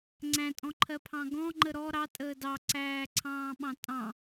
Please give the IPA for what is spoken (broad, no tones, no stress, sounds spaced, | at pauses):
ŋ͡ǀ æ̃ tʼ ɔ̃ ǃʰ ɜ pʰ ɑ̃ ɡ ɔ̃ ŋ͡ǃ ə ɾ ɔ ɾ ɑ tʼ əː d ɑ ǀ æː ǀʰ ɑ̃ː ɓ ɑ̃ tʼ ɑ̃